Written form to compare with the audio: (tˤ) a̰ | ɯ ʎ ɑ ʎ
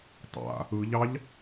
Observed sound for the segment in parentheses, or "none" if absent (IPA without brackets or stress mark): tˤ